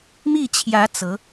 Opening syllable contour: falling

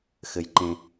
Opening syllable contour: low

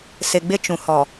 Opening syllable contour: low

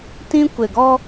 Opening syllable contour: high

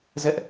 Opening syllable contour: high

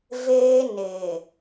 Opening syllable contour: high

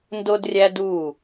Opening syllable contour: high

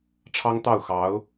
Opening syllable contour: high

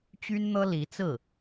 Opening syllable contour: high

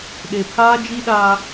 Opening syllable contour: low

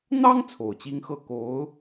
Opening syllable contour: high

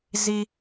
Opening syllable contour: high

